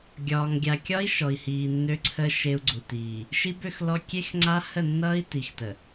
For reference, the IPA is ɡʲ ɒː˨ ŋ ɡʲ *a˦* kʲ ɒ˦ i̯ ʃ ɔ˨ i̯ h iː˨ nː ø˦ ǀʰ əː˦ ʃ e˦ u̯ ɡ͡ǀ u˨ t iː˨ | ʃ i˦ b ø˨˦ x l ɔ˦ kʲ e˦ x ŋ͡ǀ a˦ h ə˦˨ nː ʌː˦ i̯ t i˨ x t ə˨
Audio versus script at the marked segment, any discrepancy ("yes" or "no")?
yes